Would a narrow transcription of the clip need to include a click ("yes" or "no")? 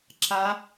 yes